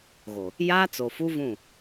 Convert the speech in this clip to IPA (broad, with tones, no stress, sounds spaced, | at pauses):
ɣ o˨ | j aː˦ t͡s o˨ f u˦ v ũ˦˨